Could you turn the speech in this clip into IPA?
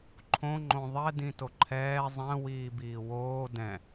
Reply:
ǃʰ õ ŋ͡ǃ õ ðˤ ɛ d ĩ t o ǃʰ ɛː zˤ ɛ̃ w iː b iː w oː d ɛ̃

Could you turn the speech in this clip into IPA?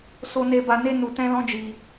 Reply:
s o˧ n e˧ b a˧ n e˦ n u˧ t ɛ̃˦ l ɔ̃˦ d͡ʒ i˧

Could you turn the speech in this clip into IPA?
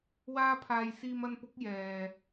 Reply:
w aː˥ pʰ aː˧ j s iː˧ m ɐ˧ n p ʊ˨˥ k̚ j ɛː˨

